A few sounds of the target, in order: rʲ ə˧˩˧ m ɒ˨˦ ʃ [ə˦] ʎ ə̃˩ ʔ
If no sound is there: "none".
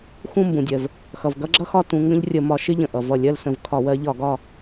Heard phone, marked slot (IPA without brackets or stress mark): ɪ˦